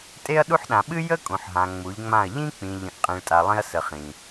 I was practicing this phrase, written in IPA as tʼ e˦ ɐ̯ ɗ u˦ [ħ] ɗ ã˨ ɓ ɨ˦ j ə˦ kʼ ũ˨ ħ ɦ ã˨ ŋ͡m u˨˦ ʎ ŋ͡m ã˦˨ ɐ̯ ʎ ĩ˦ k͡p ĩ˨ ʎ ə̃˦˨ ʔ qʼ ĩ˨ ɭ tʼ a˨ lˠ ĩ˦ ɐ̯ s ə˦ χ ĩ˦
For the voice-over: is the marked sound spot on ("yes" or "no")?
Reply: yes